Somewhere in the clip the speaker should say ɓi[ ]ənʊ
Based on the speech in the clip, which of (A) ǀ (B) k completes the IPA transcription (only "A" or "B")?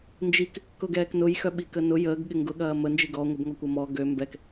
B